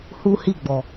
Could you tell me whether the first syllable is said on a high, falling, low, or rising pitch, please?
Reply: high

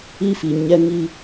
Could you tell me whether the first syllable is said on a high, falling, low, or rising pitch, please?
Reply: high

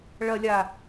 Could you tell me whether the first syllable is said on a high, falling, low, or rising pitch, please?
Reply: low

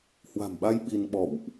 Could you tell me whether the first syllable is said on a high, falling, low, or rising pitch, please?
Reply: low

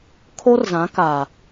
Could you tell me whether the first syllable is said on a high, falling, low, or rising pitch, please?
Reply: high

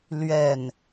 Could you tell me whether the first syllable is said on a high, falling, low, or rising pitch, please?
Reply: falling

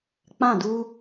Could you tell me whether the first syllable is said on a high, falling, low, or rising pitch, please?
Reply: falling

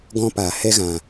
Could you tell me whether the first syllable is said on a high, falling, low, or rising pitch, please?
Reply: high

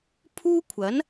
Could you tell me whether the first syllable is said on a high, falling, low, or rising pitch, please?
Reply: high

